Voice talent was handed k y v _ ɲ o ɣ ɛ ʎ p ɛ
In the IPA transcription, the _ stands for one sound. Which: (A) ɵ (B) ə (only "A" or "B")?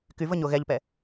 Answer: B